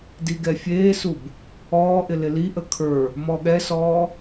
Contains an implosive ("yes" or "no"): yes